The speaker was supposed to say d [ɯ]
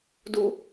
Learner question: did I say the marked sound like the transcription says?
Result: no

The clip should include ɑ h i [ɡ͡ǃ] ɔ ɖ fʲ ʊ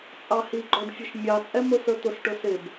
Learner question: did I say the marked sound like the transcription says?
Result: yes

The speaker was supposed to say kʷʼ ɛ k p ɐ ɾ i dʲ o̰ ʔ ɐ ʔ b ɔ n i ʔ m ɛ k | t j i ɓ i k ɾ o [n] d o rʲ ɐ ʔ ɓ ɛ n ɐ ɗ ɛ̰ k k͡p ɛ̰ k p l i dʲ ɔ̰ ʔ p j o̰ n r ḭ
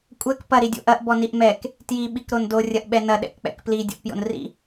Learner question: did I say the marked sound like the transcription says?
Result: yes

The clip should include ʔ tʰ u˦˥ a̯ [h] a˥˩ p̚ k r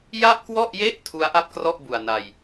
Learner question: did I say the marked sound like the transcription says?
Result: no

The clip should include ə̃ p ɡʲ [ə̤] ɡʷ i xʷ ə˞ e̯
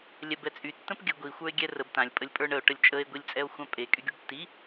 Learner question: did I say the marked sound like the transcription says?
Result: no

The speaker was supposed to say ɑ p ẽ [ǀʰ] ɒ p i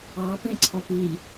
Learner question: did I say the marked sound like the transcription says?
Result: yes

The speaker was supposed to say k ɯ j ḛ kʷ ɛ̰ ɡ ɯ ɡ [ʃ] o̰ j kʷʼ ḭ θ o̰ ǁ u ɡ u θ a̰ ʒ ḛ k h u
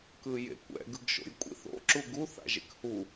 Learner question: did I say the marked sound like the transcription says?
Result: yes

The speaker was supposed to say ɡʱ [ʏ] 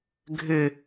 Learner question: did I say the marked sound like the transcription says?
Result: yes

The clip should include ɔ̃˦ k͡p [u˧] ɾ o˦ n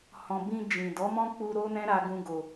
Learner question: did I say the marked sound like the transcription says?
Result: yes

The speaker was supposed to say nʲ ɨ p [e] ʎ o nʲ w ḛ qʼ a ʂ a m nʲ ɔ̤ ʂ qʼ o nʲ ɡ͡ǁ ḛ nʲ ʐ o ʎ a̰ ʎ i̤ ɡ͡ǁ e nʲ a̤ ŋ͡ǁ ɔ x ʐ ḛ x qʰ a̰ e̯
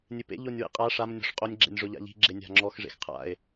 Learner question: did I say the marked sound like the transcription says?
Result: no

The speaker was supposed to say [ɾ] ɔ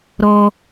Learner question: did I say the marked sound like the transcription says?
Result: yes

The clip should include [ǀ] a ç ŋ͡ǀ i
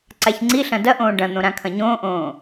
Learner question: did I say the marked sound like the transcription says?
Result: yes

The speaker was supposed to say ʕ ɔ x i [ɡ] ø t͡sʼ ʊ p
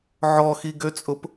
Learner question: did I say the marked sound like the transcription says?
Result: yes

